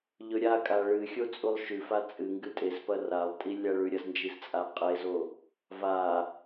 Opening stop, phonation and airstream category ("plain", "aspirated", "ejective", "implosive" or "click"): ejective